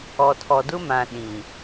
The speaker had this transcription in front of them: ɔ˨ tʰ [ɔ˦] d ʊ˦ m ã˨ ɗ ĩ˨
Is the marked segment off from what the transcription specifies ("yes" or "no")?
yes